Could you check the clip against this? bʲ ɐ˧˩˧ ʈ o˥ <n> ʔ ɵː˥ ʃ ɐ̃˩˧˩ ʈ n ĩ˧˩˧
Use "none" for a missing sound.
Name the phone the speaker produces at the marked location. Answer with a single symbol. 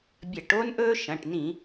n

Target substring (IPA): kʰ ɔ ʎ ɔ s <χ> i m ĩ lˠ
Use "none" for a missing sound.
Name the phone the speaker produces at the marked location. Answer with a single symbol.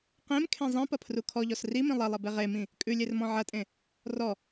r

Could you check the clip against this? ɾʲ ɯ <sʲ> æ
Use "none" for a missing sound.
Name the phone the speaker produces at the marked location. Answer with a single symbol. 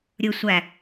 sʷ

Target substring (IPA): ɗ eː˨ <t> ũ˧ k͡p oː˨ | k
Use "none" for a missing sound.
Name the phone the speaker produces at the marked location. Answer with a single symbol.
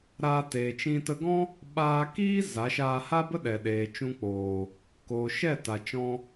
t͡ʃ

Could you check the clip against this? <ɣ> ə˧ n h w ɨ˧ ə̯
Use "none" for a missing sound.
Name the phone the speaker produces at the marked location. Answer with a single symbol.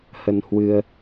h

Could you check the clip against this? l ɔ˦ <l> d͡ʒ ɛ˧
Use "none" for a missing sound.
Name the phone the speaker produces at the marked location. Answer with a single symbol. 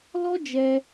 none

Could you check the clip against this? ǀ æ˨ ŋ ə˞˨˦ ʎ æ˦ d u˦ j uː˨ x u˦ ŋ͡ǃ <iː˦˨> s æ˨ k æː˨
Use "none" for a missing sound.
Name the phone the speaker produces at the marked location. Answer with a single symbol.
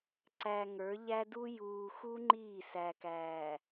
iː˦˨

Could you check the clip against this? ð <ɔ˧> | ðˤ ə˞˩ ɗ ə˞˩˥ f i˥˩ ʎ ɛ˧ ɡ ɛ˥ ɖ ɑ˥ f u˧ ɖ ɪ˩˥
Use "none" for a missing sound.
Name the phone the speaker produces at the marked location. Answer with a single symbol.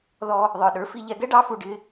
ɔ˧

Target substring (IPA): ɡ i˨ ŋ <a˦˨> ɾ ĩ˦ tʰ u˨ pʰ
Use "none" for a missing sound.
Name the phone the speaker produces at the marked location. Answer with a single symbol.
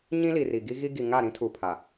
a˦˨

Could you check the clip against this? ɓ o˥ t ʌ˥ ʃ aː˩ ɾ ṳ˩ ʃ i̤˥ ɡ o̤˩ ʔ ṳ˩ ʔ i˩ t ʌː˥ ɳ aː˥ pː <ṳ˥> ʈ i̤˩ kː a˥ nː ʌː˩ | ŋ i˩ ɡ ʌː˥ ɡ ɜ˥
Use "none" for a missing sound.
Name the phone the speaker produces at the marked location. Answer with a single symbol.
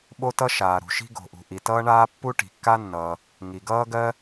u˥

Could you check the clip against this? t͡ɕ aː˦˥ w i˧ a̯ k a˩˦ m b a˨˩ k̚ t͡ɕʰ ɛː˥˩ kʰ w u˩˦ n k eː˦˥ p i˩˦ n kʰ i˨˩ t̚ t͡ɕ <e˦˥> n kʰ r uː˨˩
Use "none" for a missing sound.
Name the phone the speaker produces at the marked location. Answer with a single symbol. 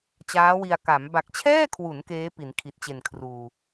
e˨˩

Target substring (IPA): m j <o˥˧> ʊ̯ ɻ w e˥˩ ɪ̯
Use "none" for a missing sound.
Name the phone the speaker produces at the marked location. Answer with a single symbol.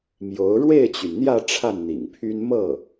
o˧˥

